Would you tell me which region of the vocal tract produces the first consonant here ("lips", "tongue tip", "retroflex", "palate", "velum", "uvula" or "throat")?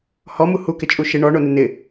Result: throat